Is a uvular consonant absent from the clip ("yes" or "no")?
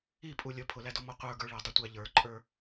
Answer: no